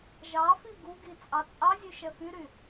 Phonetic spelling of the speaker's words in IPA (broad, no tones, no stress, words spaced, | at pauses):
ʒɑfi ɡuɡi t͡sʼɑt͡sʼɑzʲʉ ʃɛfyɾy